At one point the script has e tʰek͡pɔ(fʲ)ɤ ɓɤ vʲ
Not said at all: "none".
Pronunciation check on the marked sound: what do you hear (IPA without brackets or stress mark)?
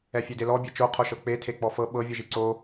f